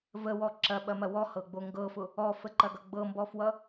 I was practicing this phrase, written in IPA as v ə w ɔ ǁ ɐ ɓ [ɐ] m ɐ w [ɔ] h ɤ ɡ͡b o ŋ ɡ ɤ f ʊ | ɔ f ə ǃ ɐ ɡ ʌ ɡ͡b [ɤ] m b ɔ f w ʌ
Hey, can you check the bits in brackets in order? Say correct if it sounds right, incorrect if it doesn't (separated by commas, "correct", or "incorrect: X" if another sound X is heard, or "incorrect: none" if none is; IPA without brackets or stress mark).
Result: correct, correct, correct